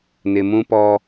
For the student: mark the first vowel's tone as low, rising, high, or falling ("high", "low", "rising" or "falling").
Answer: low